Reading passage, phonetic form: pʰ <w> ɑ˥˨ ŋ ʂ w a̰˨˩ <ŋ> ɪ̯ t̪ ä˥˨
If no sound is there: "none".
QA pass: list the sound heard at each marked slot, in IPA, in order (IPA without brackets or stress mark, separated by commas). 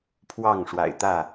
w, none